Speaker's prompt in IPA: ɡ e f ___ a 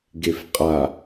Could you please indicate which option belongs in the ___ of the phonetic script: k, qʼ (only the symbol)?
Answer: qʼ